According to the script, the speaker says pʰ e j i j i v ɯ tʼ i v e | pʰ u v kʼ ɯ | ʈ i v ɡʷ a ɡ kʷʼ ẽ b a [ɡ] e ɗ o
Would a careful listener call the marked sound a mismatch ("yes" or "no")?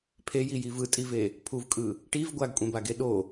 no